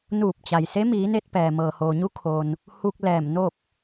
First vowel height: high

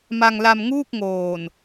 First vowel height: low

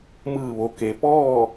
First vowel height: high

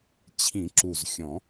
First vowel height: high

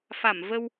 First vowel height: low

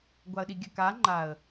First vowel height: low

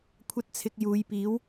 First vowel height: low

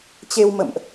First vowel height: mid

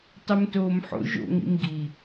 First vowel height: mid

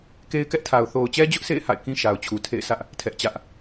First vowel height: mid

